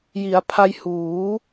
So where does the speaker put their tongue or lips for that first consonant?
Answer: palate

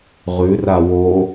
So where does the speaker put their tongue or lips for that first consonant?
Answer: uvula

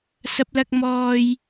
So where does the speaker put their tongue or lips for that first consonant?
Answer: tongue tip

